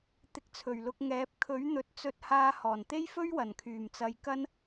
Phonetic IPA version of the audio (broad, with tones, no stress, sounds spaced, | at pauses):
t̪ ɪ˧ k̚ t͡sʰ ɵ˨˩ ɥ l ʊ˧ k̚ ŋ ɛː˨˥ p̚ kʰ ɵ˨˥ ɥ n̪ ɵ˨˥ t̚ t͡s ɵ˧ t̚ h aː˧ h ɔː˨˩ n t̪ e˥ j f ɵ˥ ɥ w ɐ˨˩ n kʰ yː˨˩ m t͡s ɐ˨˧ j k ɐ˥ n